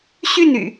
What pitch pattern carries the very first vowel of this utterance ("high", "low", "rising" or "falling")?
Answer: falling